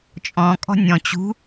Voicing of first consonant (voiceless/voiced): voiceless